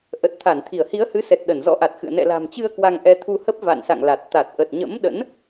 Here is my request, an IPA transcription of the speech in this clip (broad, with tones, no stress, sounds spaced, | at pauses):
ʔ ə˨˩ t̚ t̪ʰ a˧˩ n t̪ʰ i˧˩ ə̯ h i˨˦ ə̯ h ɨ˨˦ s ɛ˨˩ t̚ ɗ ə˧˩ n z ɔ̰˧˥ ʔ a˨˩ t̚ x ɨ̰˧˨ ə̯ n ɛ̰˧˨ l a̤˨˩ m t͡ɕ ɨ˧ ə̯ k w a˧ ŋ ʔ ɛ˧ t̪ʰ u˧ h ə˦˥ p̚ v a̰˧˨ n s a̰˧˨ ŋ l a˨˩ t̚ t̪ a˨˩ t̚ ʔ ə˨˩ t̚ ɲ ə̰˧˥ m ɗ ə̰˧˥ n